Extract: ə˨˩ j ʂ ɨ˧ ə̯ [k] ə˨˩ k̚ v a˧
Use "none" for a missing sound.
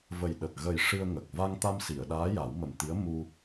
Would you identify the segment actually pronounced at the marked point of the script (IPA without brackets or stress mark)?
ŋ